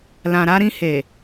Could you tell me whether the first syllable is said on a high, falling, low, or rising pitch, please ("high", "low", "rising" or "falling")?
low